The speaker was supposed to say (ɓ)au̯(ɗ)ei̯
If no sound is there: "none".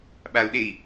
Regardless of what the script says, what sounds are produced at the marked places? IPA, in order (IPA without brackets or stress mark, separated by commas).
ɓ, ɗ